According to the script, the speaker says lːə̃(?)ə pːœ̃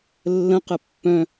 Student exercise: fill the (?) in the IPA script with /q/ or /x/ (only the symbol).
q